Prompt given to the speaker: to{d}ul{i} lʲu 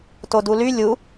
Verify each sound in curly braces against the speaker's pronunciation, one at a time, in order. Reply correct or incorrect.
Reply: correct, incorrect: y

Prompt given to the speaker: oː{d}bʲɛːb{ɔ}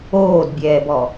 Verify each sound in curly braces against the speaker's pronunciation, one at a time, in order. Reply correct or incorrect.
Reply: correct, correct

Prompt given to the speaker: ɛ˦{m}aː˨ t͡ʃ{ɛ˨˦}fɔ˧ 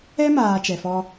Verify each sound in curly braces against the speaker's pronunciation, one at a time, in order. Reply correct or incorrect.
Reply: correct, incorrect: ɛ˨

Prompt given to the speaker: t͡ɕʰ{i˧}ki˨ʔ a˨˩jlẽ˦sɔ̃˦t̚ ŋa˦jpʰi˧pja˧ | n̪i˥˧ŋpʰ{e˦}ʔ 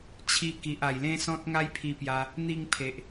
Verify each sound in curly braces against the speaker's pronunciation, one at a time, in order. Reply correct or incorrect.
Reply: correct, incorrect: e˨

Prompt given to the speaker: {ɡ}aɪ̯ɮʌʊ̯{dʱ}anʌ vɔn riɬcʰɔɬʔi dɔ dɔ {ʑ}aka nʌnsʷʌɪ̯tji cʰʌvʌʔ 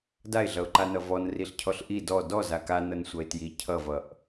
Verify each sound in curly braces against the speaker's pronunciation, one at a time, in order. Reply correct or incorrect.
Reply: incorrect: d, incorrect: ǃ, incorrect: z

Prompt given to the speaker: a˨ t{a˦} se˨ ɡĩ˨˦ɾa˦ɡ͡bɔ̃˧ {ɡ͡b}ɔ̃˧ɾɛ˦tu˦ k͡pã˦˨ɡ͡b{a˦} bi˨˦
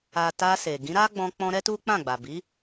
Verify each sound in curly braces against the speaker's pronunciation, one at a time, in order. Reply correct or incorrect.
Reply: incorrect: a˧, incorrect: k͡p, incorrect: a˨

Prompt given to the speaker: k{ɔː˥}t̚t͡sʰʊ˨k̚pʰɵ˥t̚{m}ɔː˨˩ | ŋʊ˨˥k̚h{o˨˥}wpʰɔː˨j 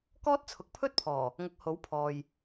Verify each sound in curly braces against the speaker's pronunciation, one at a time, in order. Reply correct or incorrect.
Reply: correct, incorrect: pʰ, correct

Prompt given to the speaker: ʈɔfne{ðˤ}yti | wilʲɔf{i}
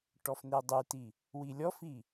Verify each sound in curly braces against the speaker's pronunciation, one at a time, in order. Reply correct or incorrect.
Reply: incorrect: dˤ, correct

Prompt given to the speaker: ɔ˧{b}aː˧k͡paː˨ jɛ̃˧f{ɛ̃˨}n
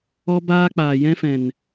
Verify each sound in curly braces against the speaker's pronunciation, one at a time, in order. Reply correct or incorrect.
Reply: correct, correct

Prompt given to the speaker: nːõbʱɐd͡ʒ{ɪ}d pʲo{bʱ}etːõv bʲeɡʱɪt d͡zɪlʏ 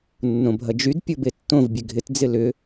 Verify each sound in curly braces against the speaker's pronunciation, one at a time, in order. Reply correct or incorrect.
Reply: incorrect: y, incorrect: b

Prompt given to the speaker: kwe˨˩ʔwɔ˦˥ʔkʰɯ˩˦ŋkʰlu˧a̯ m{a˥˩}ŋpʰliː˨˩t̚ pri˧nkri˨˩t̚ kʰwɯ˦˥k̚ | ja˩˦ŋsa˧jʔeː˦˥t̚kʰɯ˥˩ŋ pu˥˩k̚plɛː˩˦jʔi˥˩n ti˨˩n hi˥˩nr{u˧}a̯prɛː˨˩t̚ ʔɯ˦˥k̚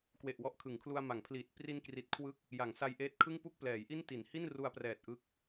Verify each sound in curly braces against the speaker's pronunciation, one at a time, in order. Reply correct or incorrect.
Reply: incorrect: a˩˦, correct

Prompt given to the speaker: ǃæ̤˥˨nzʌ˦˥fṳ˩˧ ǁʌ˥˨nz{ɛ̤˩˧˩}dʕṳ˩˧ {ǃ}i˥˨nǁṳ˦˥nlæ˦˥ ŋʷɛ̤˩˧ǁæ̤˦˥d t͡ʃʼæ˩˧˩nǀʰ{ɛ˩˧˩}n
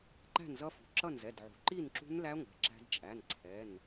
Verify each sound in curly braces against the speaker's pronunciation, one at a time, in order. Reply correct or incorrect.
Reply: incorrect: ɛ˩˧˩, correct, correct

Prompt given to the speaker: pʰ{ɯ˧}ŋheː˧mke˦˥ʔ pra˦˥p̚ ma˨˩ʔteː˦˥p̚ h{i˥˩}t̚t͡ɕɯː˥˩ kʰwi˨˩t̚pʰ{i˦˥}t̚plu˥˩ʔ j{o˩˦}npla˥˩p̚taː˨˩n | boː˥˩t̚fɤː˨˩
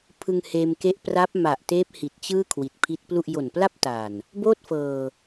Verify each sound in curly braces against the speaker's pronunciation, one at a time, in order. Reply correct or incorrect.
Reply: correct, incorrect: i˨˩, correct, incorrect: o˨˩

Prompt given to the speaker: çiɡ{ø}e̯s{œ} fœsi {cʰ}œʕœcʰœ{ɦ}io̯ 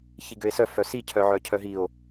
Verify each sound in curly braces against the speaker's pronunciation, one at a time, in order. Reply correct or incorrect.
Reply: correct, correct, correct, correct

